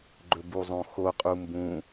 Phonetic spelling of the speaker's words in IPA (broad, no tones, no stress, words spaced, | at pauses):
ɡ͡ǃɵbuzˤõxo qʼumbũ